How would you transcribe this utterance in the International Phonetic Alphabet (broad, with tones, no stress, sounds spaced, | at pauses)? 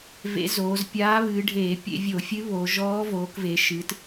v ḛ˧˥ z oː˩˧ z pʲ aː˧˥ β ɨː˩˧ ɖʱ eː˧˩˧ pʲ ḛ˧˩˧ vʲ o˧˩˧ fʲ ɨ˧˥ β o˩˧ ʒ ɔː˧˥ v oː˩˧ k v e˩˧ ʃ ɨ˩˧ t